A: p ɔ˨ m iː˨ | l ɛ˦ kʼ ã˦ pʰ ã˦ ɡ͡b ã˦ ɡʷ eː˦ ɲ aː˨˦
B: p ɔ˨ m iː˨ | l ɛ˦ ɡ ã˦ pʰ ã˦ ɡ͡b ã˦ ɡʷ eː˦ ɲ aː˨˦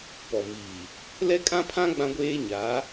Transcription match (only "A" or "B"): A